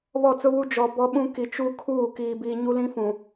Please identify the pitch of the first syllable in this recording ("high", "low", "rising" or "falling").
falling